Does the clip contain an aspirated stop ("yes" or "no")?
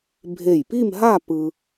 no